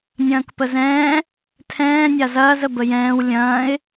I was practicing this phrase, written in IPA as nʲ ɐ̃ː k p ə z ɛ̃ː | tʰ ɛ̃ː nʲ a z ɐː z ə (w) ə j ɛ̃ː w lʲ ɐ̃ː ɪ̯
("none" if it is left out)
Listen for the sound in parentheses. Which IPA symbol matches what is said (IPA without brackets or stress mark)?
b